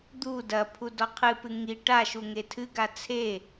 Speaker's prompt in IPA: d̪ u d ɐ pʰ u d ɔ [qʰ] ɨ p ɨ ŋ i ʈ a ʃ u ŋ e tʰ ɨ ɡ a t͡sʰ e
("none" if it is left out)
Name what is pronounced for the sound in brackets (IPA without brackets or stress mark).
qʰ